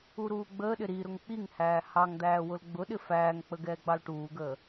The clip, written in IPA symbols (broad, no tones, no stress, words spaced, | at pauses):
uɾuːɡ͡bəːɗɪ ɾi ɾʊŋk͡piŋhæː hɑŋd̪æː wʊlɡ͡bʊɗɪ fæːŋk͡pə ɡɛːɡ͡bɑlʈuːɡəː